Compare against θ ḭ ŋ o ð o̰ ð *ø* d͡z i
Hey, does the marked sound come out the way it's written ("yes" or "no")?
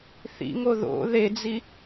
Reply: no